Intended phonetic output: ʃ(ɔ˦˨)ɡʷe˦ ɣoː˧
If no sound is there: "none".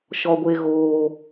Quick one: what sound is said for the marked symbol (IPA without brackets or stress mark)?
ɔ˦